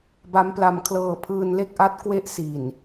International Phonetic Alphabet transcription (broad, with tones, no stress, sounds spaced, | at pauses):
b a˦˥ m p l a˧ m kʰ l ɤː˧ pʰ ɯː˧ n l e˥˩ k̚ ʔ a˦˥ t̚ k w e˥˩ ʔ s i˨˩ n